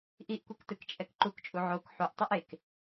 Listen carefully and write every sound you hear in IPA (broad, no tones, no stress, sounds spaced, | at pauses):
ʔ i ʔ kʷ i k t ɯ k t͡ʃʼ ɛ k ǃ u k t͡ʃʼ u ʕ o k ħ u ʔ tˤ ɯ ʔ e k